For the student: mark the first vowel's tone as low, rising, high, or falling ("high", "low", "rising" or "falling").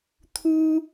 high